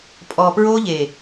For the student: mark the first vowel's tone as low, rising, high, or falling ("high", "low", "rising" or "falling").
low